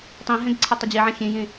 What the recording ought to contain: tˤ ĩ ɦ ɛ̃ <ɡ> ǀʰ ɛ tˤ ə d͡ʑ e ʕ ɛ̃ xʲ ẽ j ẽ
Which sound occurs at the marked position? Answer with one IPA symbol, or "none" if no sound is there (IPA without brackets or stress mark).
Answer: ɡ